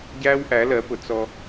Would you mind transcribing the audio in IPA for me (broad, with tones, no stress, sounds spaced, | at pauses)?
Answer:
ɟ æː˦ w ʔ æ˨˦ l ɜ˨˦ p ʊ˨ t͡s ɔ˦